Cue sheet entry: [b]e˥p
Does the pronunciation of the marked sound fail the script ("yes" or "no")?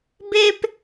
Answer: no